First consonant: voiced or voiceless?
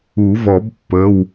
voiced